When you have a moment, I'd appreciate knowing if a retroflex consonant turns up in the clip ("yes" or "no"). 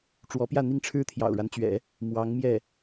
yes